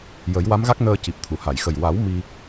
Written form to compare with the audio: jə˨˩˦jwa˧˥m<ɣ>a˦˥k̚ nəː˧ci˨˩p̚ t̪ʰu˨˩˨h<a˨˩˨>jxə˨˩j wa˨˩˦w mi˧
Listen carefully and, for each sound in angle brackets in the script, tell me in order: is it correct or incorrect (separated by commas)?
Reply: correct, correct